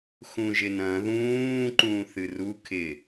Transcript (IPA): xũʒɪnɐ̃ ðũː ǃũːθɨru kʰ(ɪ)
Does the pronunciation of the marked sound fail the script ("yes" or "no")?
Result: no